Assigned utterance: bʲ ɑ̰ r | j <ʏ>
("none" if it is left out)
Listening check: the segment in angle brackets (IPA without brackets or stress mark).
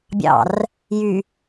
y